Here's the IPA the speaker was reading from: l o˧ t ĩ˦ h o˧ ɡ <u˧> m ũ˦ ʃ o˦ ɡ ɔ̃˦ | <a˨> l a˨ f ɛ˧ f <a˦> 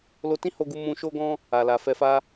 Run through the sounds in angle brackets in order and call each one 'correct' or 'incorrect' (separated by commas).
correct, correct, correct